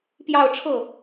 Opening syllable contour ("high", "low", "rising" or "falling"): falling